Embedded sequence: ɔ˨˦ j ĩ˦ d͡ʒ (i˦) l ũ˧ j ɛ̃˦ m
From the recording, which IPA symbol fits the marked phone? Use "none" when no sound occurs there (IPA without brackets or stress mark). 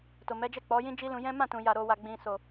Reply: i˦